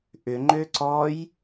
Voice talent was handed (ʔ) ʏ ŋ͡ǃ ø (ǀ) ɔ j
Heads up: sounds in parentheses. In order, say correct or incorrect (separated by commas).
correct, correct